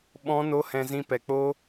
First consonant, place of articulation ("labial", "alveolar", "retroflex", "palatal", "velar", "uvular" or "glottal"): labial